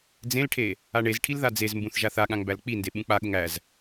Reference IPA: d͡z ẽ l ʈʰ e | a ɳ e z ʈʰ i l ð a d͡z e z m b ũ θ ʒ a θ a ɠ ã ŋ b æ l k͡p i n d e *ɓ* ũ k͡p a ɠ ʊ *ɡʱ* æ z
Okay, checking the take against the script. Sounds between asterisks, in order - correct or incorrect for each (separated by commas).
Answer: correct, incorrect